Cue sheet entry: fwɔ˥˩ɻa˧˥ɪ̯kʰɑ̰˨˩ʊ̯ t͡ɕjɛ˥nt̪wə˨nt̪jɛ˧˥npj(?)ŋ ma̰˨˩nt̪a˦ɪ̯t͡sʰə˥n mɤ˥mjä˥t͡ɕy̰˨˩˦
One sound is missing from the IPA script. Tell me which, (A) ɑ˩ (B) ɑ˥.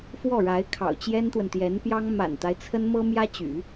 B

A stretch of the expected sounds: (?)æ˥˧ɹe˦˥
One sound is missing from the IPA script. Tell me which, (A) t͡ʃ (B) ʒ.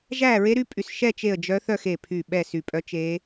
B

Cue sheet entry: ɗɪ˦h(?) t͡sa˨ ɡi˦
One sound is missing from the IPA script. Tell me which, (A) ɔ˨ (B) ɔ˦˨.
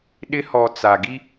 A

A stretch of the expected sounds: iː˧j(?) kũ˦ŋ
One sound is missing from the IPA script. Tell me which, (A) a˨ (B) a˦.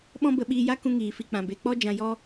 B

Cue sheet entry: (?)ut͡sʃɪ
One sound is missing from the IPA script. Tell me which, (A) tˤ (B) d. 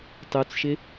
A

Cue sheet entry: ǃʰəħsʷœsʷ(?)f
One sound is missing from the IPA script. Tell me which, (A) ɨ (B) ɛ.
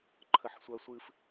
A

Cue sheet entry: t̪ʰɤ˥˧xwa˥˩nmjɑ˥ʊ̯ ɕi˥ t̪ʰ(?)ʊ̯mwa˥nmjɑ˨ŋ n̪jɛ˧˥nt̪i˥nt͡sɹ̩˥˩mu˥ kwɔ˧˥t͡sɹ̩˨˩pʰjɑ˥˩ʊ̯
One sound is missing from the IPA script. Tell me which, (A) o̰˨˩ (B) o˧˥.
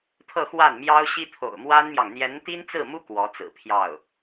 A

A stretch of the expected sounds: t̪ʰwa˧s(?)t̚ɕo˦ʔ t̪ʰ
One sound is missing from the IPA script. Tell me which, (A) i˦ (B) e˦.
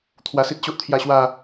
A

